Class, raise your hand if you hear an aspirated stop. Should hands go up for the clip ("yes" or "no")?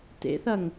no